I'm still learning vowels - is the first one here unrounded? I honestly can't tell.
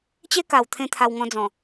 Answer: yes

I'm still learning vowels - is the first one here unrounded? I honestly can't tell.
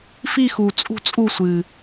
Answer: yes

